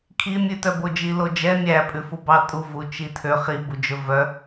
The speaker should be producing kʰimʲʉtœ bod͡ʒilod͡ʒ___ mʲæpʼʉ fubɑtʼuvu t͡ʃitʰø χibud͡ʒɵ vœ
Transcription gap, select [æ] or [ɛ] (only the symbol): ɛ